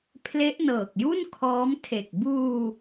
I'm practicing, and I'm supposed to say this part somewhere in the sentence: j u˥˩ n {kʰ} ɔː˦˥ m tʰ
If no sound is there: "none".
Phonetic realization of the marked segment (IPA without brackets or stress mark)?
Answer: kʰ